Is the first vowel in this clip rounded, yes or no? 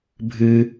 no